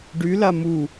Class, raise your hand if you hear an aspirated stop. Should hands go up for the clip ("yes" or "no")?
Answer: no